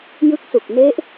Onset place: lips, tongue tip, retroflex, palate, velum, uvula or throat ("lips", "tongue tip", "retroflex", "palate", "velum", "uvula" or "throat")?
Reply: palate